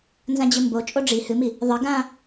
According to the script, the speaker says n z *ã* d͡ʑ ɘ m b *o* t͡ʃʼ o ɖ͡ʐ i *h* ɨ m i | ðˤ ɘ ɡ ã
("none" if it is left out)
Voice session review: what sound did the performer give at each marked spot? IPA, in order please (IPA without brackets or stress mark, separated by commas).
ã, o, h